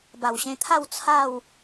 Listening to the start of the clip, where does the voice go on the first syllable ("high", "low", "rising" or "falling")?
low